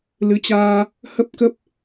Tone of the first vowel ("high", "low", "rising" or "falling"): rising